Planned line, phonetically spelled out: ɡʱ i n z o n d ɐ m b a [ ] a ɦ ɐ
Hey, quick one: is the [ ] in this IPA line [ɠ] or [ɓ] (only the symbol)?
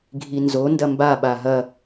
ɓ